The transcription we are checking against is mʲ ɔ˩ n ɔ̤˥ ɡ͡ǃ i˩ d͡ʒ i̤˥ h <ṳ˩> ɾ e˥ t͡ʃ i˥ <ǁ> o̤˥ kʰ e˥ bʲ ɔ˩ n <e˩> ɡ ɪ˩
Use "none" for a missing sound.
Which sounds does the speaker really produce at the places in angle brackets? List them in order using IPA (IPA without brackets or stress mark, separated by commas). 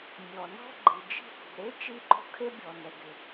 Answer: ṳ˩, ǃ, ɛ˩